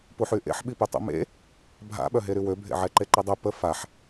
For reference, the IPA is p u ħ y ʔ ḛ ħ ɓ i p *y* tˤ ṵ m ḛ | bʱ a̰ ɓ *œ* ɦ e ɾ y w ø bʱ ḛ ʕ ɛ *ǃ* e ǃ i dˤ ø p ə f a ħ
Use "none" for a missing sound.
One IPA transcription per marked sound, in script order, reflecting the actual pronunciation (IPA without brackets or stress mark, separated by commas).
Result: y, œ, ǃ